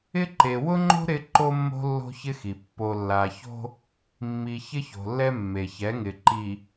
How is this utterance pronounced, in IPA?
ɪ˦ ǃe˨ wʊ˦ŋ͡ǃo̤˦ ɾɪ˦ ǃo˦mːo̤˦ lːo̤˦çɪ˦xi˨ pːo˨lːa˨ço̤˦ | mːi˨ çɪ˦ço̤˨lːɛ˦ mːe˨çɛ˨˦ŋɪ˨ ǃi˨

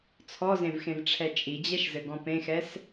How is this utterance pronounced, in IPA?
t͡sʰɔzẽvxẽvʈ͡ʂʰɛ t͡ʃʼid͡ʑɛʃzɘɡɔ̃ pẽxɛs

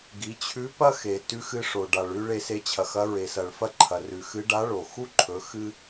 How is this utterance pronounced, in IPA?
ɡi˩˧t͡ɕʰʉ˧˥ pɐ˥xe˩ tʉ˧˥xɨ˧ʂo˩ ɖa˩ɭʉ˧ ɭe˧se˧t͡ɕʰɐ˩xɐ˧˥ ɹe˩sɐ˩ɭfɐ˥ ǃʰɐ˩rʉ˩xɨ˧˥ ɖa˧˥ɭo˩ xu˥ǃʰɵ˩˧ xɨ˥

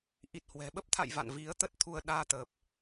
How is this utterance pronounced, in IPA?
ʔi˨˩t̚hwɛ̤˨˩ ɓə˦˥p̚t̪ʰa̰˧˨j va̰˧˨nvi˨˦ə̯ t̪ə˦˥t̚t̪ʰu˧ə̯ ɗaː˧t̪əː˨˩p̚

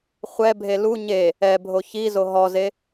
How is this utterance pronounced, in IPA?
χʷɛbʱe lu ɲe | ɛ bʱoçizo ɦɔze

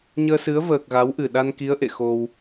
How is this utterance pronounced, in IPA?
ɲəː˧sɨ˨˦ə̯vəː˨˩k̚ ɣa˨˦wʔɨ˨˩ ɗa˧nki˨˦ə̯ ʔḛ˧˨xo˧w

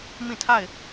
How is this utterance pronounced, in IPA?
mĩ˦˨tʰa˦˨ɪ̯

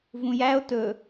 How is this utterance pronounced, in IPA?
vũjæo̯ tɵ

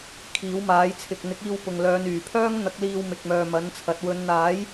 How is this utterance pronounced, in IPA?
kʰiː˨˥wmaː˨˥jt͡sʰɪ˨k̚ n̪ɪ˨˥k̚iː˧w pʊ˨ŋlœː˨˧nyː˨˩ pʰœː˥ŋn̪ɐ˨˥k̚liː˧w mɪ˨k̚mœː˨mɐ˨˥nt͡sʰɐ˨˥t̚ wɵ˨˧n n̪aː˨˥j

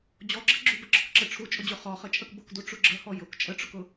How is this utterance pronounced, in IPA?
d͡ʑɔɡ͡ǁə ɡ͡ǁubəɡ͡ǁɔk ǁəʈ͡ʂʰut͡ʃʼʊd͡ʑʊ χɔ χət͡ʃʼəkbʊkdu ʈ͡ʂuɡ͡ǁəhɔ jʊk t͡ʃʼəʈ͡ʂʊkʊ

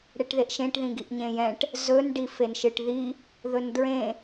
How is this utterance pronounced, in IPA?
ɽeʈðeʔʃẽʈ ðĩɡiʔɲẽjɛ̃ʈ | zɵn ɖifenʃɨʈði | ðɵndɹẽ

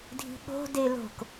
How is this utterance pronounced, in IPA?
dʱi̤ɠo̤ delo̤k

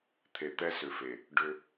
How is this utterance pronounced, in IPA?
t̪ʰe˨t̪ɛ˦sʏ˨fe˨ | ɖʏ˦

